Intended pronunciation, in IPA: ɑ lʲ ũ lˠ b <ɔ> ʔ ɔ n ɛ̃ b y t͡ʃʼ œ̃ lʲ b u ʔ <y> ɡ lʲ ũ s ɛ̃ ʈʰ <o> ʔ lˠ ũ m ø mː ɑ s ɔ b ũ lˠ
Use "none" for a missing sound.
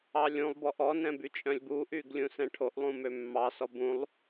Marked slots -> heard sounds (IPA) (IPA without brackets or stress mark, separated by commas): ɔ, y, o